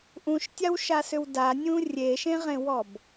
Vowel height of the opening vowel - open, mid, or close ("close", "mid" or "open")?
close